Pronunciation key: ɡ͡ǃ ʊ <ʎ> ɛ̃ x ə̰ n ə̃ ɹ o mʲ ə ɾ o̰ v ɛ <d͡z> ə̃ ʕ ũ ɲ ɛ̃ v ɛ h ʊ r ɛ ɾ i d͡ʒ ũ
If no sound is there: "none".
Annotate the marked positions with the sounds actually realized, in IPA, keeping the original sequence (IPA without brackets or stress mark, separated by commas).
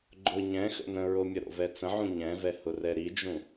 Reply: ɲ, t͡s